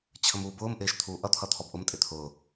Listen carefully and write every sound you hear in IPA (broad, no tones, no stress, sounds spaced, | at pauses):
t͡ɕʰ ə m uː b ʊː m ʔ ɪː ʃ t̪ʰ uː ʔ ʌ t̪ʰ ʌ t̪ʰ ɔ b ʔ ʊ m tʼ ɪ t̪ʰ ʊː